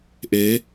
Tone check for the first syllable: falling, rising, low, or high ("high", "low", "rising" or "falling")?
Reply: rising